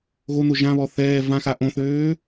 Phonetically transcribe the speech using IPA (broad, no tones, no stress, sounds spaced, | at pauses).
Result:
ɣ o n o ʒ ã β ɔ θ ɛː v ã x a ʔ õ θ øː